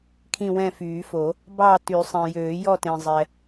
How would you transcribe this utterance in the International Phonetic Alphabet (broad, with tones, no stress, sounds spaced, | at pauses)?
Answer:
kʰ ĩ˦˨ w ɛ̃˦˨ f yː˨˩˦ f o˨˩˦ | b ɑ˦˨ t y˨˩˦ sˤ ẽ˨ j øː˨˩˦ j ɔ˦˨ t ẽ˨ zˤ ɛ˨